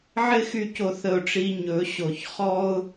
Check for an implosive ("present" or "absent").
absent